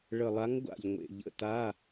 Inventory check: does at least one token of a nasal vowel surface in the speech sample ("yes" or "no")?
no